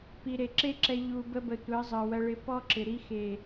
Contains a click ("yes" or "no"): yes